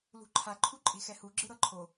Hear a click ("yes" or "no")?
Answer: yes